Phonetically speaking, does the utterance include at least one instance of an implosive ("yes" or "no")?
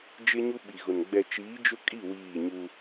yes